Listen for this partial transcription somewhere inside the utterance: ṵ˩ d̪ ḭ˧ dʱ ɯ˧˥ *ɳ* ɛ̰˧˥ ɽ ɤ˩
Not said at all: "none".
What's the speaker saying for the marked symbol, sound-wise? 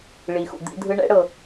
ɳ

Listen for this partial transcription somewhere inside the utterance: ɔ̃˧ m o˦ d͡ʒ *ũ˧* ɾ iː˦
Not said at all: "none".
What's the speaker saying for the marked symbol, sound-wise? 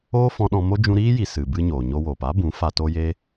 ũ˧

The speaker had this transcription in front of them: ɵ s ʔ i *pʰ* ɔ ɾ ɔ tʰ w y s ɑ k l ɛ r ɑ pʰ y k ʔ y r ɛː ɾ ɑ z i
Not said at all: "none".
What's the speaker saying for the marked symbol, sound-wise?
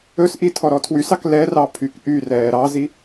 tʰ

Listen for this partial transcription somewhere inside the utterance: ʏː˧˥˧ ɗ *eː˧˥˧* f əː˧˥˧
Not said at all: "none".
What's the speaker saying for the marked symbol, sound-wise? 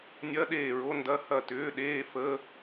eː˧˥˧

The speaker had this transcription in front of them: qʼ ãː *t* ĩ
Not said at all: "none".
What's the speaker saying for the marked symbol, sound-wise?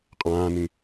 n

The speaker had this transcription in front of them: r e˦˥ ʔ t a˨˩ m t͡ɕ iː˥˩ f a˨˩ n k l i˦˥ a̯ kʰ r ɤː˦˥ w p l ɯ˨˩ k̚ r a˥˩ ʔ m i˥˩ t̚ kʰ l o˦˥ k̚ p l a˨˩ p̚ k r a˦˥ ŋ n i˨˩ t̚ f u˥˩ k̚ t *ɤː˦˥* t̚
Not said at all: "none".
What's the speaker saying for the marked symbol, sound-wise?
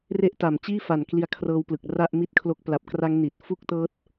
ɤː˦˥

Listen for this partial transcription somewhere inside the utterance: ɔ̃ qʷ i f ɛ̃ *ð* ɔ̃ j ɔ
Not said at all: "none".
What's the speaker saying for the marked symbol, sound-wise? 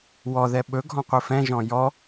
ʒ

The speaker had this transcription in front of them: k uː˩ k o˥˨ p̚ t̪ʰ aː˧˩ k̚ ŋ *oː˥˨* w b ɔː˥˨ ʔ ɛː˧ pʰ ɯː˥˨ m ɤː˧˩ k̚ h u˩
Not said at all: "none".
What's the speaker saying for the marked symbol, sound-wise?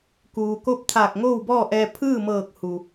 oː˥˨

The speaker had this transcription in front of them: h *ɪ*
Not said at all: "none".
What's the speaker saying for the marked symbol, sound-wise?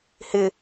ɪ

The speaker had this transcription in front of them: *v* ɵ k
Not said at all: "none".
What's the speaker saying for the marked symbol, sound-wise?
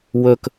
w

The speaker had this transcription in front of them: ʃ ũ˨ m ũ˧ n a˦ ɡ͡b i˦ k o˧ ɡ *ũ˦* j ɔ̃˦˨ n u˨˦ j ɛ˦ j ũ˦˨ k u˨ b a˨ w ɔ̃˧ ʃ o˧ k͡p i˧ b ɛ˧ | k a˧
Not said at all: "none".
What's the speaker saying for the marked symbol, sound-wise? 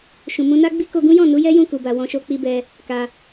ũ˦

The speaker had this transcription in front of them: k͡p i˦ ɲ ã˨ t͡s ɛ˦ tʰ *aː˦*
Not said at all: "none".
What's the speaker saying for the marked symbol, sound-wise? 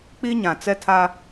aː˦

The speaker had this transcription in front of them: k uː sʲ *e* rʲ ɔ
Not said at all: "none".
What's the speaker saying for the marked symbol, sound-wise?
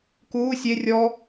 e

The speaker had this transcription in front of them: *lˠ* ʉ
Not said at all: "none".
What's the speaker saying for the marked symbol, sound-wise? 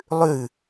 lˠ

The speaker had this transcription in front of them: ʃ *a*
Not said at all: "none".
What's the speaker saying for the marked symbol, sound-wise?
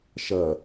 ɐ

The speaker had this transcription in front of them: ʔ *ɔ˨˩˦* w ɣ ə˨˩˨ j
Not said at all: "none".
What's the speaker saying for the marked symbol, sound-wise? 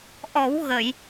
ɔ˨˩˦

